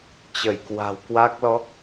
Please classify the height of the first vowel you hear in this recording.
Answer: mid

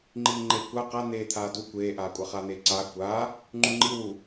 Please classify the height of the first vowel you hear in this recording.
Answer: high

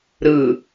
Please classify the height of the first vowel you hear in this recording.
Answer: high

